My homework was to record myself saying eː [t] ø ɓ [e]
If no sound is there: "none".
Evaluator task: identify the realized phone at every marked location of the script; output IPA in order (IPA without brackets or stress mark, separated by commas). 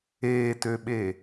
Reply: t, e